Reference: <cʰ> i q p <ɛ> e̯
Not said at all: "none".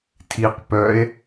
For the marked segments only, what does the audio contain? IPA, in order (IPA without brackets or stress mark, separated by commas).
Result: tʰ, œ